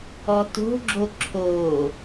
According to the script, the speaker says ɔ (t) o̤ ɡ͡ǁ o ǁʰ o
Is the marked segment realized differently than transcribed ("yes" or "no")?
no